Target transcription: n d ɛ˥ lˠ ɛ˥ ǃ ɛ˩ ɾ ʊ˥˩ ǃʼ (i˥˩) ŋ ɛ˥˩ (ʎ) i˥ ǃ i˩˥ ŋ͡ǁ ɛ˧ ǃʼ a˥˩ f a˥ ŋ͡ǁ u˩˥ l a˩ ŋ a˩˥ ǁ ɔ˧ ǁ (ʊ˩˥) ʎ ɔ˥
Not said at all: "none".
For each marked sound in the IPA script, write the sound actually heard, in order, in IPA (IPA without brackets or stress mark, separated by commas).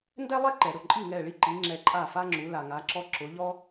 i˥˩, ɭ, ʊ˩˥